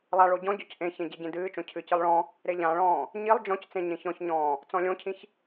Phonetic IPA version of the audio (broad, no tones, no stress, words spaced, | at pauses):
lˠaɭo ɟɔ̃ɟɔc ʔẽçẽ ɟeɟẽdɨːt͡ʃõ cʰɨcɨlˠ ɭɔ̃ | ɾeʎãɭɔ̃ː | ɲilˠ d͡ʒɔ̃ct͡sẽ ɲẽçɔ̃çɲɔ̃ː | t͡sɔ̃lʲõcʰĩç